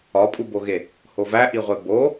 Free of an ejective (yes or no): no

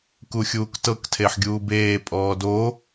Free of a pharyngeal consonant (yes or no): no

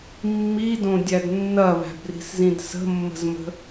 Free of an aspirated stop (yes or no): yes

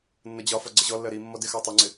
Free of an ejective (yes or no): yes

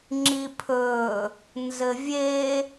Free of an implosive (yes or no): yes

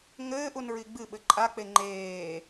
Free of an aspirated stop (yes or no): yes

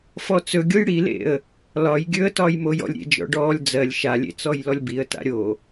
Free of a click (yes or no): yes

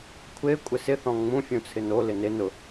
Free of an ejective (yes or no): no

